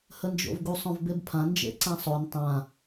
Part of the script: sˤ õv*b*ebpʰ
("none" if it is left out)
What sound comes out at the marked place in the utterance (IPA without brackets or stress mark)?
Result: b